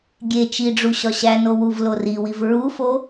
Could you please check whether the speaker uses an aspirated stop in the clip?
no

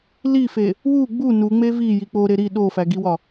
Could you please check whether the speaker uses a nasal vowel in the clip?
no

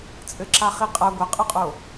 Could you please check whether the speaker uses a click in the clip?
yes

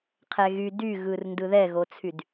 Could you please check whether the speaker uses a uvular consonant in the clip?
yes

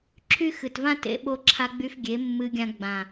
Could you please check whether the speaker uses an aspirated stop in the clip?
yes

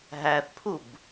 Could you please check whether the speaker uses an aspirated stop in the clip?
yes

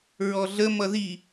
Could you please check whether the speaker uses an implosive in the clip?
no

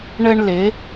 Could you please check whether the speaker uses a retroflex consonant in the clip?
yes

